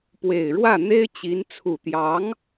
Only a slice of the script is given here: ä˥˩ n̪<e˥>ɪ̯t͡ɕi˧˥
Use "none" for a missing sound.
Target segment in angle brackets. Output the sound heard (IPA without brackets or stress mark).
e˥